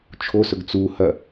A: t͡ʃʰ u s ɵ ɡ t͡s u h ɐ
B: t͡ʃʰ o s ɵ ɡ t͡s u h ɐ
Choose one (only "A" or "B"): B